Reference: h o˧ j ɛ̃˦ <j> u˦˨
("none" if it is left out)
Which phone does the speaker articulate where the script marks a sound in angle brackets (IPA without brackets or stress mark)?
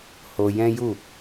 j